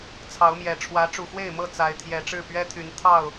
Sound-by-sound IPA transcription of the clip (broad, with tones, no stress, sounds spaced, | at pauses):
t͡sʰ ɑ˨˦ ʊ̯ m j ɛ˨˩ ʈ͡ʂʰ w ä˨˦ ʈ͡ʂ u˨˩ x w e˥˨ ɪ̯ m ɤ˥˨ t͡s a˨˦ ɪ̯ t̪ʰ j ɛ˨˩ ʈ͡ʂ ɻ̩˥˨ p ɥ ɛ˦ t̪ʰ y˨˦ n t̪ʰ ɑ˥˨ ʊ̯